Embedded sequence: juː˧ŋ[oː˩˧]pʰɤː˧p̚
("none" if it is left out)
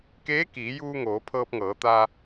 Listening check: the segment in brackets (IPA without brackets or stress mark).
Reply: oː˩˧